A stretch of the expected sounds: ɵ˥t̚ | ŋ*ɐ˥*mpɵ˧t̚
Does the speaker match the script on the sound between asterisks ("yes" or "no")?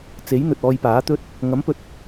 no